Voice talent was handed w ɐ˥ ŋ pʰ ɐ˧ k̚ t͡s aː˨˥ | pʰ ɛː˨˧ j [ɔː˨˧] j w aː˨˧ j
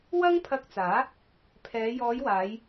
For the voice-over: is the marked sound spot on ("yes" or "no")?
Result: yes